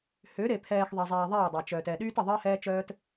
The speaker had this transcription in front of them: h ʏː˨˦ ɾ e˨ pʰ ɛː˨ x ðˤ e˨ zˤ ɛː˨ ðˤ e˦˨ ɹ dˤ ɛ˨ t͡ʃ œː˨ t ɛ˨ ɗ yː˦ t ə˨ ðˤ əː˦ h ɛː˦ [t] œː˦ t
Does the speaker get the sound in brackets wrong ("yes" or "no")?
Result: yes